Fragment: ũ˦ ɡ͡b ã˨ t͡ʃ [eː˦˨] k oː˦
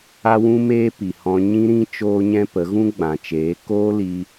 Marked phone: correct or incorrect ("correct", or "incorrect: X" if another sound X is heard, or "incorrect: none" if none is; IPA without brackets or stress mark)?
incorrect: eː˨˦